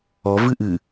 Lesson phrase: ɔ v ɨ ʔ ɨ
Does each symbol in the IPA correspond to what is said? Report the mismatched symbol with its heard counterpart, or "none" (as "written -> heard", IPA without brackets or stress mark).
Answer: none